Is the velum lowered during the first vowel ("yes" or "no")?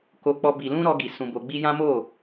no